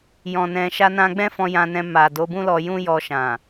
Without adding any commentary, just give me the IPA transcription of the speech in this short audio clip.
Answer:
j ɔ̃˨ n ɛ̃˨ ʃ a˧ n ã˧ ɡ͡b ɛ̃˦ f ɔ̃˧ j ã˧ n ɛ̃˧ m a˨ d o˨˦ b ũ˦ l ɔ˧ j ũ˦ j ɔ˧ ʃ ã˨

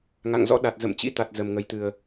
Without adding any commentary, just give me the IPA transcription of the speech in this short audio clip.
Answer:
ŋ a̰˧˨ ŋ z ɔ̰˧˥ ɗ a˨˩ t̚ z ə̰˧˨ m t͡ɕ ḭ˧˥ t̪ a˨˩ t̚ z ə˨˩ m ŋ ə˨˩ j t̪ ɨ˨˩ ə̯

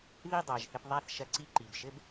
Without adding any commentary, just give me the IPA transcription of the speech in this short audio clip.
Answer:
ð i˥˩ dˤ a˩ ʒ θ ɘ˧ p ðˤ a˥˩ θ ʃ ɐ˧ ǀ i˥˩ ǃ i˩ b ʃ ɘ˥ b

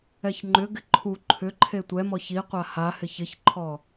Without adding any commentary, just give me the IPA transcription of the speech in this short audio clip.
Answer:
ɛ ç ŋ͡ǃ ʏ ɡ ɪ ǃʰ u ǃʰ ʏ ǃʰ e tʷ ɛ m ɔ ç i qʷ a h a h ɪ ç ɪ ç ǃʰ ɔ

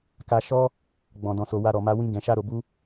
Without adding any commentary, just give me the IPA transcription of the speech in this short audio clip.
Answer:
k a˧ ʃ ɔ˦ | ɡ͡b ɔ̃˨ d ɔ̃˨ s o˨ w a˧ ɾ ɔ˨ m a˧ w ĩ˧ ɡ ɛ̃˨ ʃ a˧ ɾ o˨ b u˧

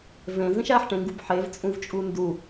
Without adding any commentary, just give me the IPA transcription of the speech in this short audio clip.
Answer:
v ẽ z ĩ ʃ æ ħ ʈ ẽ ŋ ɡ u b ħ e v t͡sʼ ũ v t͡ʃʼ u n d u

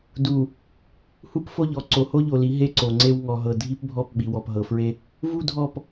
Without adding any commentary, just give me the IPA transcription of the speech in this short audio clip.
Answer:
d u˨ | h u˦ p f o˦ ʎ ɔ˨ ǀ o˨ h o˦ ʎ o˨ l i˨˦ ɦ e˦ ǀ o˨ ŋ͡ǀ e˦ w ŋ ɔ˨ ɦ ɤ˨ dʱ i˦ p bʱ ɔ˦˨ p ɓ i˨ w ɔ˨ p ɦ ɤ˨ f ɹ e˦ | v u˦ dʱ ɔ˦˨ p

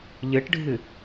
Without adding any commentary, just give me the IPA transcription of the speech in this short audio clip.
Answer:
ʎ ɨ ʈ ɖʱ ɨ

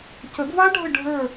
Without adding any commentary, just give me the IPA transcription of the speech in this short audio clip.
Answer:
c ə˨˩˦ ɡ v a˦˥ ɖʱ ə˦˨ ɖʱ ə˞˦˨

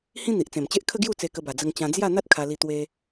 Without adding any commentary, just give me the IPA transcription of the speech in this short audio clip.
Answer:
h ĩ˦ n̪ i˨ ʔ t͡s ẽ˨˩ m t͡ɕ e˦ ʔ kʰ ə˦ ɡ j u˥˧ t͡s e˧ k ə˧ b a˨˩ d͡z ə˧ ŋ t͡ɕ ã˧ d͡z j a˥˧ n̪ a˦ t̚ kʰ a˧ l i˧ t̪ w e˧

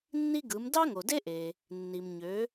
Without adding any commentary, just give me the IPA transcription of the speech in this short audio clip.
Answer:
nː i˥ ɡ ɯ˩˥ m d ɑ˥ ŋ o˩ d e˥ ʔ e˩ | nː i˩ m ɲ ø˩˥

